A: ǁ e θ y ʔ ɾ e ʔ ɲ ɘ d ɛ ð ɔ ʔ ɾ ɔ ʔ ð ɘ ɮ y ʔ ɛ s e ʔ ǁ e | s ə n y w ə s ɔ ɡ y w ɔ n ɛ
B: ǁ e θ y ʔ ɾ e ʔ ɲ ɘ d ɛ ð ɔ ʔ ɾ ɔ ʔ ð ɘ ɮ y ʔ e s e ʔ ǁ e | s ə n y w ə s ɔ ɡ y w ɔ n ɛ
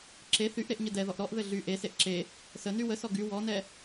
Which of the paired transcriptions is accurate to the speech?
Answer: B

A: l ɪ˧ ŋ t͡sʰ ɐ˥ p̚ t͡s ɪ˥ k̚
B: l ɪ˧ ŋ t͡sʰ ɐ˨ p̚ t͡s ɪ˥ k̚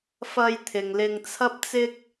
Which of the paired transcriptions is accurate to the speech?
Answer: A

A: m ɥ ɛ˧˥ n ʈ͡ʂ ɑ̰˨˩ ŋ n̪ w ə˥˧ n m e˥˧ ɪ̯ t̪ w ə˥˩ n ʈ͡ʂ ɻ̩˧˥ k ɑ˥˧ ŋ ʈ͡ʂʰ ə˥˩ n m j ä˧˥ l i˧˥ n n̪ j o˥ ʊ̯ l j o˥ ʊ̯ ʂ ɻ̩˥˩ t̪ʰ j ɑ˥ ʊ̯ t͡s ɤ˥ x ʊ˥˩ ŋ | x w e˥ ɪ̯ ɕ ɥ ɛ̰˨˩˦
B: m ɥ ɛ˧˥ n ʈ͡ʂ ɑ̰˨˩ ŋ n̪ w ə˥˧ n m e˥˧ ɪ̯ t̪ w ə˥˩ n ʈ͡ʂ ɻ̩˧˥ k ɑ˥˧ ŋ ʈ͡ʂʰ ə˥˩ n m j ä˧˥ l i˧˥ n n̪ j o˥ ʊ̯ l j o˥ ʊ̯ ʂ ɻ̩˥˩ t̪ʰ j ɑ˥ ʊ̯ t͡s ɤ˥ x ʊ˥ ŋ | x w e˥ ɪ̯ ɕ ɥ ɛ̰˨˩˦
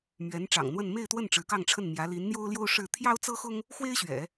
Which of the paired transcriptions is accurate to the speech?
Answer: B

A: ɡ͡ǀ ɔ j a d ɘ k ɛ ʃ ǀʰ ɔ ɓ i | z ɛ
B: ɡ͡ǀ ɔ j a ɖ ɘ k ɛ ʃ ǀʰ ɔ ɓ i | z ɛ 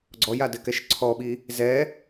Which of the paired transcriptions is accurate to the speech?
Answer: A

